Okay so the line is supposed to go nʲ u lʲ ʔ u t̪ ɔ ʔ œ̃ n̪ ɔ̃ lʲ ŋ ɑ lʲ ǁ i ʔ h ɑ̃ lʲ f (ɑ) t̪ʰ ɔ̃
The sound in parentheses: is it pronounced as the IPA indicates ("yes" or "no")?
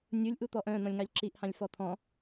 no